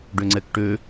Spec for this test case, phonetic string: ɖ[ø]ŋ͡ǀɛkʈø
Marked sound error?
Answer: no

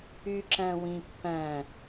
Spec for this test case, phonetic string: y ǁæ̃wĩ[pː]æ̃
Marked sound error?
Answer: no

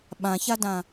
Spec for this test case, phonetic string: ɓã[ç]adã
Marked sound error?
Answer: no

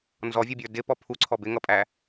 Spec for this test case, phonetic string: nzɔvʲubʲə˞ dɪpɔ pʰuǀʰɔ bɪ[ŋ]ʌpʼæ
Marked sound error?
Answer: no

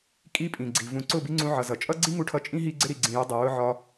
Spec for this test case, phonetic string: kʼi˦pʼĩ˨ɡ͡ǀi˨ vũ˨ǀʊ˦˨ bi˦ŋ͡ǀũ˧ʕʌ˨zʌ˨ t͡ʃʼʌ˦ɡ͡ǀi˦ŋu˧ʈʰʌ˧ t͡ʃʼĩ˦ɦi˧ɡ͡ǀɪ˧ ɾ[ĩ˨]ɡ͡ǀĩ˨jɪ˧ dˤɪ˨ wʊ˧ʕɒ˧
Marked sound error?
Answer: yes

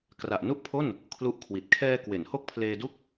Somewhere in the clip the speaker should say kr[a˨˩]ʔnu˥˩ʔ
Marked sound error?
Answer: no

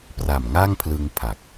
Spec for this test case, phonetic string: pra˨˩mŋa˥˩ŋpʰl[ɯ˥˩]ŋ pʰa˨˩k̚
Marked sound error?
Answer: yes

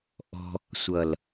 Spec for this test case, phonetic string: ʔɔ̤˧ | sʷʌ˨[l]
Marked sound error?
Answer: no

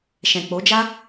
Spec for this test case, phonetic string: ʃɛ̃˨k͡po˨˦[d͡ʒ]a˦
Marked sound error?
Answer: no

